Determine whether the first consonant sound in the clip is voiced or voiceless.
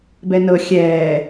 voiced